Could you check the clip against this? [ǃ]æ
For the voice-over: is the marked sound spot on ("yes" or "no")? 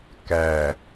no